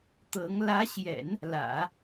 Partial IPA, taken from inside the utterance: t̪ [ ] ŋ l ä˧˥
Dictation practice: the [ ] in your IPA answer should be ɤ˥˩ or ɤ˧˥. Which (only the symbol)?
ɤ˧˥